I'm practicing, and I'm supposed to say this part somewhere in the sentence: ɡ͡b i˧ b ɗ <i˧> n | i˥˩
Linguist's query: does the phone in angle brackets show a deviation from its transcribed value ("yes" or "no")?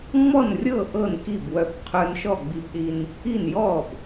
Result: no